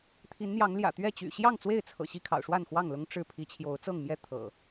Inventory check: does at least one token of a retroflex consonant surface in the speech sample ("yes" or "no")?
yes